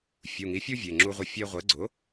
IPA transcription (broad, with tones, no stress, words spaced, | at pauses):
fʲu˩˧˩ŋi˩˥fʲu˦ vʲe˩˧˩ŋ͡ǁu˦ʁʷɪ˦ fʲe˦ ʁʷe˩˥ɡ͡ǀʊ˩˥